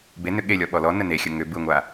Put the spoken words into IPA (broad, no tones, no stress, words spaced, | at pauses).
be nʏɠelʲɔ ɓɔlɔ nəne xʲəŋʏ bɯŋʷa